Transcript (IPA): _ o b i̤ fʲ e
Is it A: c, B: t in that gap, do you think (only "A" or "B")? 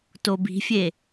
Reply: B